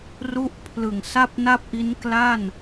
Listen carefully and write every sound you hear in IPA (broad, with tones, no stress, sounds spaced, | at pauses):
r u˥˩ ʔ pʰ l ɯ˨˩ ŋ s a˥˩ p̚ n a˥˩ p̚ ʔ i˦˥ n k l a˥˩ n